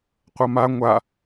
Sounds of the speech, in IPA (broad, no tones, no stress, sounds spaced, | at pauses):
qʷ ʌ m a ŋʷ a